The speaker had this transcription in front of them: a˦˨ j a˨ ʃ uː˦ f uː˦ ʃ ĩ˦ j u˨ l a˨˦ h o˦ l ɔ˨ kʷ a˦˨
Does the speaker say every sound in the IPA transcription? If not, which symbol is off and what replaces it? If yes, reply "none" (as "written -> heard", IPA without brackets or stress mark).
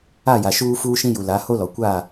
none